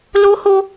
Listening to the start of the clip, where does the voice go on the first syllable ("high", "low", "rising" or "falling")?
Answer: high